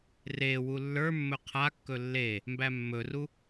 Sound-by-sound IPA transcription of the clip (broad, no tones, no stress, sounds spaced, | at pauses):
r e w u lː ə˞ mː ɵ qʰ a kː ɵ lː e | m b æ mː ɵ r u